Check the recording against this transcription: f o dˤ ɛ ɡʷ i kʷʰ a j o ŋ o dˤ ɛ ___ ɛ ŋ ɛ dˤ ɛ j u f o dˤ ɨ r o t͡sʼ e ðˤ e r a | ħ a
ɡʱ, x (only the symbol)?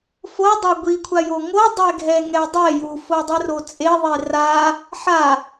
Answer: ɡʱ